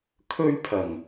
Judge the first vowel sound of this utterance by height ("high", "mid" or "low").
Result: mid